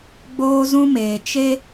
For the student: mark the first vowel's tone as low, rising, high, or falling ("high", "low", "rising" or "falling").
high